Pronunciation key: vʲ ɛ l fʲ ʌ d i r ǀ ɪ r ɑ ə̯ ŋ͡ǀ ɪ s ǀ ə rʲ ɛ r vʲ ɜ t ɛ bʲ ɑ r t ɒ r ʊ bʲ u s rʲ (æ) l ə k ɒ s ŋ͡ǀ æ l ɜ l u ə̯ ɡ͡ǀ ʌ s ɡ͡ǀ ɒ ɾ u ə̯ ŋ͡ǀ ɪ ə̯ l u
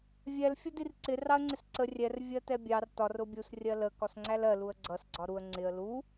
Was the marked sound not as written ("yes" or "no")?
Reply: yes